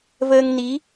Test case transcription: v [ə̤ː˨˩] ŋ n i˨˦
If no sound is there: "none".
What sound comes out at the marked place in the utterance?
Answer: əː˧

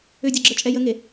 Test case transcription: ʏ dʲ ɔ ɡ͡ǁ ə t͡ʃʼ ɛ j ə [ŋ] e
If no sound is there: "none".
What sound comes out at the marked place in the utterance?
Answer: ŋ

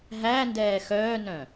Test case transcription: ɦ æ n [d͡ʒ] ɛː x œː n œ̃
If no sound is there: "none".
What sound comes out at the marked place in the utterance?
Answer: d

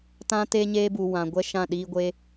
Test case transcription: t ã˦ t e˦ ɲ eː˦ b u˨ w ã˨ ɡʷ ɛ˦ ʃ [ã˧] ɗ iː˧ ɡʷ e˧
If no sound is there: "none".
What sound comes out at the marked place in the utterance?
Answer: ã˦˨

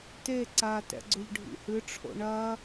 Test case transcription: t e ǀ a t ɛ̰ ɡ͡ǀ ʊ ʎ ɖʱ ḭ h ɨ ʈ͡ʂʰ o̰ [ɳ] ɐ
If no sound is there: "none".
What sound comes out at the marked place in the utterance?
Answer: ɳ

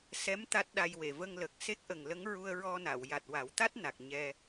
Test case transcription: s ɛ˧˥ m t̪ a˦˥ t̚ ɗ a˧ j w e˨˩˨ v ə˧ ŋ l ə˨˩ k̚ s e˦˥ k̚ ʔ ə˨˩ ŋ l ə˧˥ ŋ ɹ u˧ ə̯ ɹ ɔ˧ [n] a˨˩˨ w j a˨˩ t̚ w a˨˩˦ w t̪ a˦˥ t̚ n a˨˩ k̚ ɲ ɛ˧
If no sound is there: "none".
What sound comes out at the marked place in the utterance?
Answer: n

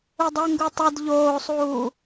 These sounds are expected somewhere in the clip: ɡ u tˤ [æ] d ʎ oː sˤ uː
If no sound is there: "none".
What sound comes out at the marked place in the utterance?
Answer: ɐ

